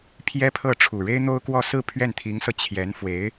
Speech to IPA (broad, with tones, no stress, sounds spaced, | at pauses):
pʰ j ɛ˥ pʰ ɤ˥˩ ʈ͡ʂʰ u˨˩ ɻ e˥ ɪ̯ n̪ o˥ ʊ̯ k w ɔ˥˧ s ɹ̩˥˧ pʰ ɥ ɛ˥˩ n t̪ʰ i˧˥ ŋ s ɤ˧ t͡ɕʰ j ɛ˧˥ n f w e˧˥ ɪ̯